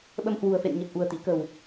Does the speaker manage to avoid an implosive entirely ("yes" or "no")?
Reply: no